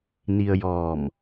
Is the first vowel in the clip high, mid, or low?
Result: high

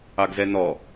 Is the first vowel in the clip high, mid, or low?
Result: low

